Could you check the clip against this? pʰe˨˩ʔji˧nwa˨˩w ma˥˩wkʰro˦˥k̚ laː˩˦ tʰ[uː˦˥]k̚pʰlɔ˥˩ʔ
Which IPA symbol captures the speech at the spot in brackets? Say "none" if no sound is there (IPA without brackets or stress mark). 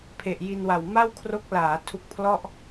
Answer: u˦˥